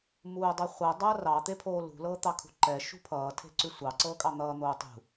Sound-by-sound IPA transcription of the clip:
m uː dˤ ʉ χʷ ɤ dˤ ʌː r ɑ t̪ e pʰ oː l ṳ l ɤː t̪ ɑ kʰ ṳ ǃ ɛ ʃ ṳ pʰ ʌː tʰ e̤ ǀ ʉ sʷ ɑ ǀ ɤː kʼ ɑ n̪ ʌː n̪ oː tˤ ṳ

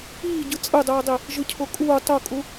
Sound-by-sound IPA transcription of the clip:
iː ɟ ɯ t͡sʼ ɯ dˤ uː dˤ i | ʒ ɯ cʰ o kʼ uː tˤ o kʼ u

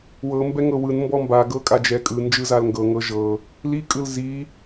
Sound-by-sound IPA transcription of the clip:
w ɤ m b ɛ ŋ ɤ w ɯ n m b ɔ m b a ɡ ɤ kʼ a d͡ʒ ɛ kʼ ɯ n d͡ʒ ɯ z a l ŋ ɡ ɤ ŋ ɤ ʒ ɤ | l i kʼ ɯ l z i

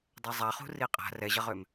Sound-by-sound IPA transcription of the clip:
dˤ ɛ zˤ a χ ṳ r i qʼ a̤ r ɛ ʑ ɐ ʁ ø m

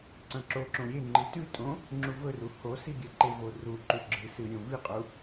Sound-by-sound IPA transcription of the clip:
ǀ ɐ̃ ǁ o ǁ õ ɾʲ e ŋ͡ǃ ɨ t ʉ tʼ õ | ŋ͡ǁ u v ɵ r u h o s i ɡʲ ɐ ǃ e v o r u ǃ u ɡ͡ǁ ɨ s ɨ ɾʲ õ v i qʼ u

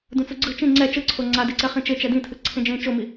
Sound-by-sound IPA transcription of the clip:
d ũ t͡s u ɡ͡ǀ ɯ t͡ʃ ĩ ŋ͡ǀ ɛ t͡ʃ ɯ ǀʰ o ŋ͡ǀ a d e ǀ ɛ χ ĩ t͡ʃ e t͡ʃ ɛ d ĩ tʰ ɯ ǀʰ ẽ d͡ʒ ẽ t͡ʃ o m i

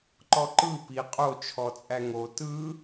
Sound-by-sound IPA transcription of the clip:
ǃ ɔ ǃ ɯ p i qʼ o t͡ʃʰ ɔ t͡sʼ æ ŋ o t ɯ

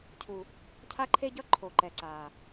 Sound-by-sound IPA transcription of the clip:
cʰ u˨ | cʰ a˦ ǃʰ e˦ ɟ ʌ˦ ǃʰ o˨ ǃ ɛ˨ ǀ aː˨

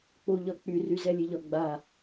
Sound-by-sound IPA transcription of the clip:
k͡p o ʎ ɒ k͡p y r y z ɛ lʲ e ʎ ɒ ɡ͡b a

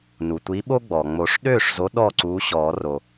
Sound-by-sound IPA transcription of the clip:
n u˩ tʷ i˨˥ ɓ o˦ ɡ͡b ɔ˩ ŋ͡m o˨˩˦ ʂ ɗ øː˥˩ ʂ z o˨˥ ɗ ɔː˥˩ ǀ uː˨˥ ɕ ɔː˨˩˦ r o˩

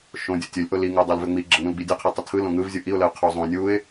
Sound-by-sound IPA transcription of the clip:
ʃ õ dʲ o tʲ ɵ lʲ ʔ o l i ŋ o dˤ o l v ø ŋ͡m i ɡ͡ǁ ə ŋ ũ l ɡ͡b i dʲ o qʰ i tˤ ɵ tʰ ɯ l õ ŋ ɯ v zʲ u ʔ i ʊ̯ l ə ʊ̯ qʰ o zˤ õ nʲ u ɪ̯

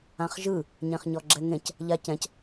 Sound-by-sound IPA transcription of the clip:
ã χ ʒ ɯ | ɲ ẽ χ ɲ ɔ ɡ͡ǁ ɛ ŋ ẽ c | ʎ a c ɛ̃ c

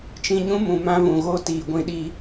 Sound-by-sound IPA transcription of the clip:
t͡ʃ ĩ˧ ɲ ũ˦ m ũ˨ m ã˧ v ũ˨ ɣ o˦ t iː˨ ɡʷ ĩ˧ ɗ i˧

